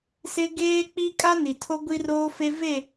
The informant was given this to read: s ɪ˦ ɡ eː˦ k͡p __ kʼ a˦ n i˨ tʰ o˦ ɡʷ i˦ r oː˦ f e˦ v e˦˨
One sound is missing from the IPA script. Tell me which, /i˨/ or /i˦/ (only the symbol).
i˦